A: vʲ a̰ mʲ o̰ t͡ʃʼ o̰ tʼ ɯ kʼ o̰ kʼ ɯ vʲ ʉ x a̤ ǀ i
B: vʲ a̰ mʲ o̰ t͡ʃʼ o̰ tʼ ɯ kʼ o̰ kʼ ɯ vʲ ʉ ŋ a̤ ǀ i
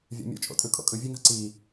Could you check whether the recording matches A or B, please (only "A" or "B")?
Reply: B